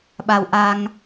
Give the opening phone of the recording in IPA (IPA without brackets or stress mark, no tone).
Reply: ɓ